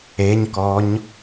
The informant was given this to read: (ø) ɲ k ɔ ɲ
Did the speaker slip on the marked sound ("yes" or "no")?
yes